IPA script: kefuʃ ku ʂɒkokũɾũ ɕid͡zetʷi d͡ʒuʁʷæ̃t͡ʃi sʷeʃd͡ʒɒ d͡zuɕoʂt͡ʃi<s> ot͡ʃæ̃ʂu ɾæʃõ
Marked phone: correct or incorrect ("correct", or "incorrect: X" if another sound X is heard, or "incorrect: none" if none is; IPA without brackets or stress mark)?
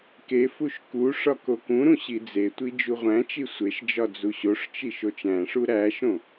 incorrect: ʃ